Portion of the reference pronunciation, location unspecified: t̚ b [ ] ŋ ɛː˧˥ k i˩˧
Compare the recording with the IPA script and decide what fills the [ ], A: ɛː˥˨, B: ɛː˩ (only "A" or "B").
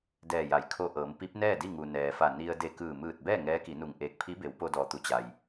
A